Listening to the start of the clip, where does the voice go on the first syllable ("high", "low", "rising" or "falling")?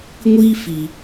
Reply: high